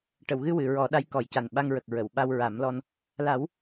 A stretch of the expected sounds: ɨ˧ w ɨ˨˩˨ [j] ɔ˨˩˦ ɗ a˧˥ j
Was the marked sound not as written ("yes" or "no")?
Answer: yes